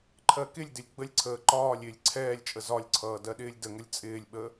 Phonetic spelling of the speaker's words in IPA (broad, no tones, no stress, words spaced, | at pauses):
ǃʰɜkɪlʲdɪlʲ ɡ͡bəlʲǀʰəː ǃɒːlʲ ɪːlʲǀʰɛːlʲt͡ʃʼə zɒlʲǀʰʌː dɜɗɪːlʲdəŋəlʲ t͡sʼɪːlʲɓə